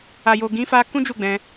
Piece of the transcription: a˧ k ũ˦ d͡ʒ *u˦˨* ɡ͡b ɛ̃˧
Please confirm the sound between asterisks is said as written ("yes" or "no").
yes